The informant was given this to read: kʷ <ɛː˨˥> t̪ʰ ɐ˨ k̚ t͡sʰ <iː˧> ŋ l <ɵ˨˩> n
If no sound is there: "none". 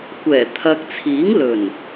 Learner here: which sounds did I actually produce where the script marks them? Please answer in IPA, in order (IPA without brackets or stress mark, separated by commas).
ɛː˨˩, iː˨˥, ɵ˨˩